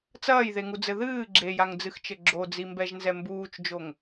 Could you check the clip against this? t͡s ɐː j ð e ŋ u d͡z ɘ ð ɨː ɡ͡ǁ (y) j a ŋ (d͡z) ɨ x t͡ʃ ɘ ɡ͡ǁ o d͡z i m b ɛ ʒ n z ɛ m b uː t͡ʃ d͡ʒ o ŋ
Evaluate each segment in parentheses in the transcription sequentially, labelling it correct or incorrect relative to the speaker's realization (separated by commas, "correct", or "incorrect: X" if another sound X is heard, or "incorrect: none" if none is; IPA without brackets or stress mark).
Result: incorrect: e, correct